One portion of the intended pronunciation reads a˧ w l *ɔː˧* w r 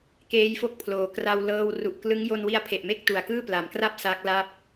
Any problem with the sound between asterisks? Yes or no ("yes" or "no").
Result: yes